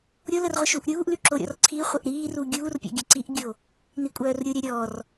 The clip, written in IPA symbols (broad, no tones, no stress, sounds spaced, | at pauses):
ɾʲ o l ə r ʁʷ ə ʃ u ʔ ɾʲ uː ʔ l y ǁ o ɾʲ ɔ̰ r ǀʰ i χʷ ə ʔ ɾ iː r u ɡʲ uː r pʲ ɔ̰ ɡʲ ə ǀ i ʔ ɡʲ o | n i kʷʼ œː r ɾʲ u ɾʲ œ ɾʲ ɔ r